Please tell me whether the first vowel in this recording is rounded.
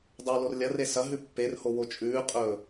yes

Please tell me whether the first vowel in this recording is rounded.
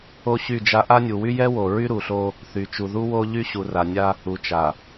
yes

